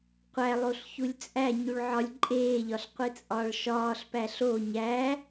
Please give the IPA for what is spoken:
qʷ æ lˠ o ɬ ç u lʲ t͡sʼ æ ɲ u ɭ ʕ ɒ lʲ ǃʼ eː ʎ ɒ ɬ qʷ i t͡sʼ ɒː ɭ ʃ ɒː ɬ p æ ɬ o ɲ æ

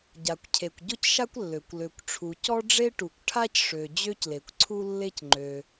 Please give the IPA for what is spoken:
ɟ a˩ kʷ cʰ e˩ kʷ ɟ ʊ˥ c ʃ a˥ kʷ lː ø˩ kʷ l ø˩ kʷ ʈ͡ʂʰ u˩ c ɔ˥ ɖ͡ʐ e˥ ʈ u˩ kʷ ʈʰ a˥ c ʂ ø˩ d͡ʑ ø˥ c l e˩ kʷ ǀʰ u˥ lː e˥ c ŋ͡ǃ ø˩

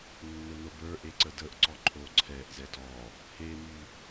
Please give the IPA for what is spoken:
nː o n o b ə˞ ʔ e ǀ ə d ə ʔ ǀ ɔ ǃʰ o ǀʰ ɛ ʔ z ɛ d ɔ | h e m y

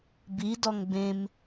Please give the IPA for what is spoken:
b i d ɔ ŋ b ẽ m

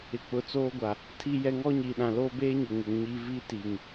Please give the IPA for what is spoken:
ɪ˨ k͡p ʊ˨˦ t͡s oː˦ ɡʷ a˨ | tʰ i˦ j ɛ˦ ŋ ɔ˦ ɲ iː˨ ɗ ã˨ l oː˦ b eː˦ ɲ ʊ˨ ŋ ɪ˨˦ ŋ ɲ i˦ v i˦ t i˨ ŋ

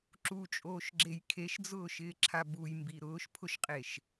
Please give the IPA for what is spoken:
ǁ u t͡ʃʼ oː ʃ ɡ͡ǁ e j kʰ e ʃ d͡z ʊː ʃ ɪː ǁʰ a b u j m b i ɾ ʊː ʃ pʰ ʊ ʃ qʼ e ʃ

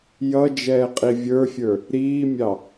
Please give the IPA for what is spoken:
j ʌ d͡ʒ ɛː qʼ i vʲ ə˞ fʲ ə˞ | ɾ iː mʲ ɑ

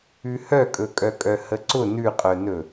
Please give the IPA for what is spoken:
ʉ h œ kʼ ɵ kʼ œ kʼ œ h ə ǀ ʊ n ʉ qʼ œ n ɵ

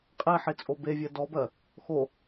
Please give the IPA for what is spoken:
qʼ e ħ e t͡sʼ o b e vʲ ɜ d ɔ b ɜ | x o

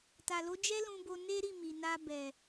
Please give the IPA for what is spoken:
t a˨ l o˨˦ d͡ʒ ɛ˦ l ũ˧ b o˧ n e˦ ɾ i˦˨ m i˨ n a˧ b ɛ˨

